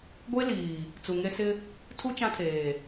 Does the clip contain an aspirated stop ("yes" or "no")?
yes